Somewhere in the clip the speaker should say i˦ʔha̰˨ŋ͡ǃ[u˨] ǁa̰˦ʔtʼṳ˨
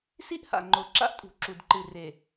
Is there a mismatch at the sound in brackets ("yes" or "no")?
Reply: yes